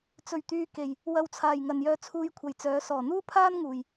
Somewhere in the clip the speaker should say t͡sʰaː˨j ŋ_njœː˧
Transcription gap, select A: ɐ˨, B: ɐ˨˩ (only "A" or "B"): A